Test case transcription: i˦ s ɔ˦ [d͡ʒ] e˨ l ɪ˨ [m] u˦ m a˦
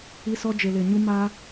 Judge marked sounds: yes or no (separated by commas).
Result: yes, no